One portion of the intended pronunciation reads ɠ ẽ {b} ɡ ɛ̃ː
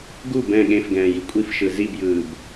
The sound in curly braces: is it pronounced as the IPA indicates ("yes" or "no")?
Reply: no